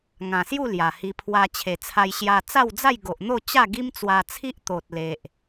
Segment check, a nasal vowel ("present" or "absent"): present